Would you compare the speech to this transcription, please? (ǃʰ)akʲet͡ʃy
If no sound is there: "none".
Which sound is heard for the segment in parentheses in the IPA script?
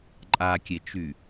ǃʼ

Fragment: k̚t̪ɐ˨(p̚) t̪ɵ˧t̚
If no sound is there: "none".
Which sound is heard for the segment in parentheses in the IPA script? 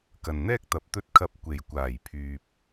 p̚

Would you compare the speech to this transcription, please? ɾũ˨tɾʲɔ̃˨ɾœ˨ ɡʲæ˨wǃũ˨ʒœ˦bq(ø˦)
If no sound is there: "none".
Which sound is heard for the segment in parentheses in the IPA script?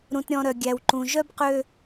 ø˦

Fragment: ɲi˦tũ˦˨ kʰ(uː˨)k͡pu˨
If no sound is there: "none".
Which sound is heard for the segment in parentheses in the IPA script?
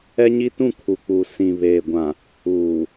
u˨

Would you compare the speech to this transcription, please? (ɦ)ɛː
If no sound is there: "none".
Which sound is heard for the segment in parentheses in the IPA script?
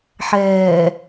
ħ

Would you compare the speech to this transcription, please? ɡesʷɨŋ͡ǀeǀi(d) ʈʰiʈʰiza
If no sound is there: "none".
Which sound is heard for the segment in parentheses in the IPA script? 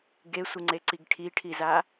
ɡ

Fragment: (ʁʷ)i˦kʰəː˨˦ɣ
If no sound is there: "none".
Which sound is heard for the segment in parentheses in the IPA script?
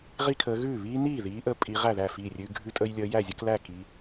ʁ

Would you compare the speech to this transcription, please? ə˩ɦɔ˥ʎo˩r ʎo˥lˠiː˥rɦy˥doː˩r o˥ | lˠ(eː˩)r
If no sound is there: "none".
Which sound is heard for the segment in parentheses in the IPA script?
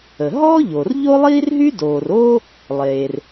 eː˩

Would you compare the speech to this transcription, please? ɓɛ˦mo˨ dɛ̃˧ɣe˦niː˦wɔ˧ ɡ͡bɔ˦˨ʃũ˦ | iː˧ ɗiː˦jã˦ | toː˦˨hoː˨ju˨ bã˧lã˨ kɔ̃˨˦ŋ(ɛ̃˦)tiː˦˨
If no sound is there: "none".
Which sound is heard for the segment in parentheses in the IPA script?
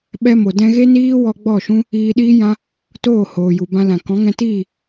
ɛ̃˧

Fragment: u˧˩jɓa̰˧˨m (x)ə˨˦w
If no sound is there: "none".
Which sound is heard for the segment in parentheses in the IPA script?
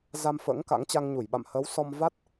h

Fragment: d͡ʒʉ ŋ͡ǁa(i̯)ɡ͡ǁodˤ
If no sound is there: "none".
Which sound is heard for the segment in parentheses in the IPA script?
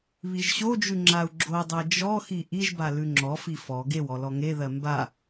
u̯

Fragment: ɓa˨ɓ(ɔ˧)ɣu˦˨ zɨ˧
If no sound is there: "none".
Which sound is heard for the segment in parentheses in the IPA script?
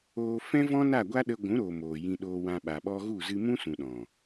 ɔ˧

